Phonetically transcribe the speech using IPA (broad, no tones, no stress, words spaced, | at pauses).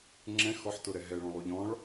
ŋ͡ǁɛ̃ xɔħtʊɾɛ ɦɛɭɔ̃lˠu ʎɔ̃ɭ